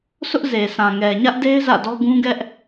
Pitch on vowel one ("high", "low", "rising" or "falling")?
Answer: high